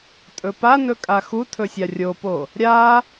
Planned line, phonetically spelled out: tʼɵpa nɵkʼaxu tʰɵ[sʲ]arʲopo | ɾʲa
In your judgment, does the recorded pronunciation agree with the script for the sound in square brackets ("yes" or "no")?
yes